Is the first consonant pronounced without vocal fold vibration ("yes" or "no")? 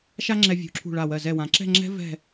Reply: yes